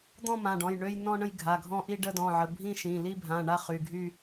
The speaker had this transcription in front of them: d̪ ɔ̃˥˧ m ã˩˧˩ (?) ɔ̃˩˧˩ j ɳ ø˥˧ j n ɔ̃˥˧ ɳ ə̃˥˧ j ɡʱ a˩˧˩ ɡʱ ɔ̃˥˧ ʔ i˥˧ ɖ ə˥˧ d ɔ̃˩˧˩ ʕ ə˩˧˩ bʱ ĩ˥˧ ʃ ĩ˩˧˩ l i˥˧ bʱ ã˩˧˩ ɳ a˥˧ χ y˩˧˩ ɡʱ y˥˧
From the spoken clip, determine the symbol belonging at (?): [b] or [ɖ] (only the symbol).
ɖ